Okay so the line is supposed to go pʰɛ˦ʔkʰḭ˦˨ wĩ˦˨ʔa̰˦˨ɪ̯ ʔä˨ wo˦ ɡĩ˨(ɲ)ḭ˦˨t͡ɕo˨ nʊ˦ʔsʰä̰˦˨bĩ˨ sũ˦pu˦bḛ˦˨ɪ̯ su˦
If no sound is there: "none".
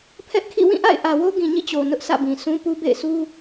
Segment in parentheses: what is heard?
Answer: ɲ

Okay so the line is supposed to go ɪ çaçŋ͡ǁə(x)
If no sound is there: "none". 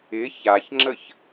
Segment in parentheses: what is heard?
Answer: ç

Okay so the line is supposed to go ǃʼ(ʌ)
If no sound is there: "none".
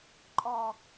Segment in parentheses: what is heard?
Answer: ɔ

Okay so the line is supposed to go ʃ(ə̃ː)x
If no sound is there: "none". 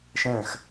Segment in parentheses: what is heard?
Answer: ə̃ː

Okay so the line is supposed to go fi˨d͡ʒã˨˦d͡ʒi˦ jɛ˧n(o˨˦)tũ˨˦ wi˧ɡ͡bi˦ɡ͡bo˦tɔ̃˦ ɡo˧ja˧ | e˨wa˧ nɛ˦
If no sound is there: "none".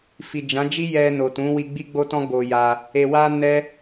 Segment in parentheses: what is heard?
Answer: o˨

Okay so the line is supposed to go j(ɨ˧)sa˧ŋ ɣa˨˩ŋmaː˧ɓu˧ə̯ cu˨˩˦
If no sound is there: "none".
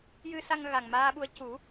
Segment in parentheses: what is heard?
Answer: ɨ˧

